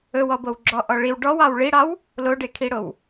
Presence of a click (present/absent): present